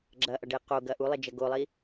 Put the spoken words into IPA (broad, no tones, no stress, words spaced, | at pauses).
ɡ͡ǁɐʔɐɖe qoɡɐ ʔulˠed͡ʒɐ ɡolˠi